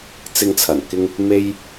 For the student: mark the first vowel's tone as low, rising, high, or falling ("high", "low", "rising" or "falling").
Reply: high